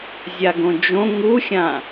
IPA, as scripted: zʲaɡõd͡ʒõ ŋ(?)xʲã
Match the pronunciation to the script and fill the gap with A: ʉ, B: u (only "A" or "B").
B